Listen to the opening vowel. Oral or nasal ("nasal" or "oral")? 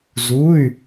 oral